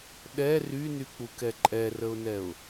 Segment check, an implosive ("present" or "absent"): present